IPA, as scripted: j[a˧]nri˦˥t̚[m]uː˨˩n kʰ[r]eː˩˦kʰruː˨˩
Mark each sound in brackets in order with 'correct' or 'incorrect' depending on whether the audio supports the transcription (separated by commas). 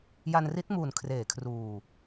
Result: correct, correct, correct